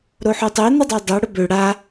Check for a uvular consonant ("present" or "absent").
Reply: absent